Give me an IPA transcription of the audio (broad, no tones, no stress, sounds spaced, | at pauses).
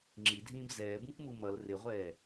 ŋ͡ǁ i dʱ ĩː b z ɛː b ũ k m u m ʌ l r ɪ ʁʷ ɛː